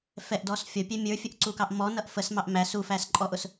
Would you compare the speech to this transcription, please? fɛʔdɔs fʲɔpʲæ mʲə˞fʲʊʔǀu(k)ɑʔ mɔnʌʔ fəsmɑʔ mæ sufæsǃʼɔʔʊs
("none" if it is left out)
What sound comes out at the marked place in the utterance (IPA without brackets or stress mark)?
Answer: k